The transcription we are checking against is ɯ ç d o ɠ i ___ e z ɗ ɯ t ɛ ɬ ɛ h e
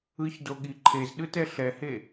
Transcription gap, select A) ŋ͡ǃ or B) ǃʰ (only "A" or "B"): B